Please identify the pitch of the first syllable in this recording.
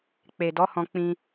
low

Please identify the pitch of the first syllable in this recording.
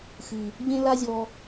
low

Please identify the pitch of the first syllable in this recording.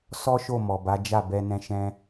high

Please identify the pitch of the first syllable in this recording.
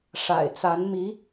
low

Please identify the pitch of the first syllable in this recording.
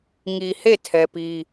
low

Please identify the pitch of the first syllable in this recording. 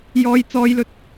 high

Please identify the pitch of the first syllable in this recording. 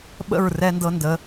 falling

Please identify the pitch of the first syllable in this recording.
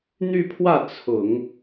falling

